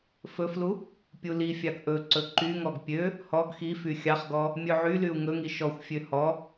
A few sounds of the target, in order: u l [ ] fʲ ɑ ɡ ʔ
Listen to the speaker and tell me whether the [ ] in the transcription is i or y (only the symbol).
i